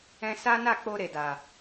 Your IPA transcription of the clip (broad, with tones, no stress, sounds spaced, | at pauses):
ɛ̃˧ s a˦ n a˦˨ k͡p o˧ ɾ e˨ d a˨